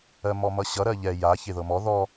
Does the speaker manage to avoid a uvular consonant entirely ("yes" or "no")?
yes